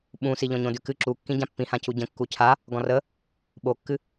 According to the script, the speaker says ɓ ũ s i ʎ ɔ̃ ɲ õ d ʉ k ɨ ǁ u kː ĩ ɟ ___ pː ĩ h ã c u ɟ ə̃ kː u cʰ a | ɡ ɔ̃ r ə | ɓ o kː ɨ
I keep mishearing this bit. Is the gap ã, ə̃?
ã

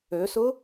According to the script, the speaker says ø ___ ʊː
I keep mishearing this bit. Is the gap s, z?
s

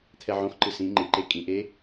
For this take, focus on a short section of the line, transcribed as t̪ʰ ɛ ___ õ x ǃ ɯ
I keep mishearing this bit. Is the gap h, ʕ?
ʕ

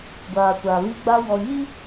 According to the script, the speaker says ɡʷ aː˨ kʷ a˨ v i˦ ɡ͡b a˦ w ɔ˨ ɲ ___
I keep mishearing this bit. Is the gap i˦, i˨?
i˦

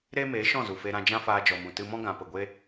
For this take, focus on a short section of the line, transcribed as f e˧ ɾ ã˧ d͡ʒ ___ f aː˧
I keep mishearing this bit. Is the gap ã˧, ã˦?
ã˦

